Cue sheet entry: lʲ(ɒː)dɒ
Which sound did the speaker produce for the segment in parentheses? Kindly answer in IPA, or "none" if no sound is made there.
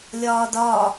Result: ɒː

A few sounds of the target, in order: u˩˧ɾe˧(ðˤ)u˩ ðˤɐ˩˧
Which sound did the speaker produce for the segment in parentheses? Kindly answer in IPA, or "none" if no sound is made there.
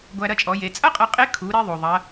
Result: ðˤ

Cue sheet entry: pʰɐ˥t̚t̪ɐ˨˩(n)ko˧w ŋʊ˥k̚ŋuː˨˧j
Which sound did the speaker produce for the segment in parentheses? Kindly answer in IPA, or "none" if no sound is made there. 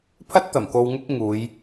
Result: m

